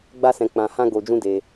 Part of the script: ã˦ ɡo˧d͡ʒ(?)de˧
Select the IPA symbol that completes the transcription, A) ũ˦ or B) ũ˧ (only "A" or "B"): A